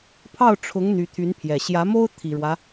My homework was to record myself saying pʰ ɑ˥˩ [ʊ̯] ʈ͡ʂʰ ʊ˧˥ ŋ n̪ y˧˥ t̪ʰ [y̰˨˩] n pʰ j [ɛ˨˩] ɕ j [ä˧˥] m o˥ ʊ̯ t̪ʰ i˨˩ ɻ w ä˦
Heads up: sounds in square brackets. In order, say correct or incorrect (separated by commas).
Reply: correct, incorrect, correct, correct